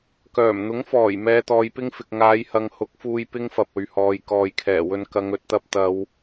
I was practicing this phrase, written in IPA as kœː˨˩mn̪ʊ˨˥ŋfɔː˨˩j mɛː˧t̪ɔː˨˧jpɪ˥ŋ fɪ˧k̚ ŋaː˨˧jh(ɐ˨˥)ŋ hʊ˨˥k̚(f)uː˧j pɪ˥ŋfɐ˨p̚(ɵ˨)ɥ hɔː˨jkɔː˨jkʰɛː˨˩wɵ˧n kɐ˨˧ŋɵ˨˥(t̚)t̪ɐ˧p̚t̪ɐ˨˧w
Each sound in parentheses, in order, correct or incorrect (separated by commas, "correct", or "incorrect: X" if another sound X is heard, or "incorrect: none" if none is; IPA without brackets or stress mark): incorrect: ɐ˨, correct, correct, correct